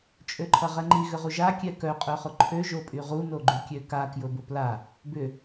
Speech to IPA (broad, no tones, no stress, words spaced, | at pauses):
t͡ʃʼøǃʰɐʁɛŋ͡ǃi ɣʏʁuʒa kʲɛkœ qʼœχʊǃʰø ʒopʼyʁu noɡ͡ǃykʲøka kjʊbʊpla | bʏ